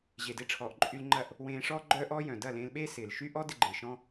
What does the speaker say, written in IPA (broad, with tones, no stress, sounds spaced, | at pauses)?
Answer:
ʑ e˨ d ɪː˧ ʈ͡ʂʰ ɔː˨ ʔ ǃʼ y˧ l ŋ͡ǃ ɐ˦˨ ʔ | w ẽː˧ ʂ ɔː˦ ɡ͡ǃ œː˦ ʔ ɔː˦ j œ̃˨ d ɐ˦˨ l ẽː˧ l ɓ eː˦ s ɪː˨ l ʃ y˦ ʔ ɔ˦ d ɪ˧ ɡ͡ǃ ɪː˨ ʃ ɔ̃˦